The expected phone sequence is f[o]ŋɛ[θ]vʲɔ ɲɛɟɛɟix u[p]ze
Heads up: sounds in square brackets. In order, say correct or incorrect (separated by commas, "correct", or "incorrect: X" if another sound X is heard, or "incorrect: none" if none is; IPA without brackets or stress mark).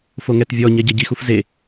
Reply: correct, incorrect: t, incorrect: f